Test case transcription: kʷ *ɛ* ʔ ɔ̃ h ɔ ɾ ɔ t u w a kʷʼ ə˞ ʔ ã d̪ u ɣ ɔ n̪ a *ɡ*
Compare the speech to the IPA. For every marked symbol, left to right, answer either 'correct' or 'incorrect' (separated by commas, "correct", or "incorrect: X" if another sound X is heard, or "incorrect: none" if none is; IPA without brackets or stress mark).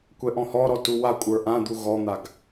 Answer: correct, correct